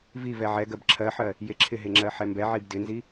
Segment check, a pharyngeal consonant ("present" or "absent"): present